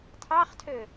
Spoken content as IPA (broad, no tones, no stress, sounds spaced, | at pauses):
tʰ ɑ χ tʰ ø